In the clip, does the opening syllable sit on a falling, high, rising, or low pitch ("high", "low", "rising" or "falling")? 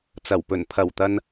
low